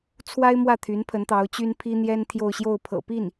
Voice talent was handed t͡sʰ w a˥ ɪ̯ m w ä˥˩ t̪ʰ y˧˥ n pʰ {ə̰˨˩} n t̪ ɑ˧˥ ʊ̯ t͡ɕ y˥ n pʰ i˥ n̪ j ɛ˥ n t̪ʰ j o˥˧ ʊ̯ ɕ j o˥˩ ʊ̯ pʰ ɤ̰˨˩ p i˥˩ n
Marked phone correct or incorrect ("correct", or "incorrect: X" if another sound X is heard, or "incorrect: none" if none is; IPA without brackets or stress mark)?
incorrect: ə˧˥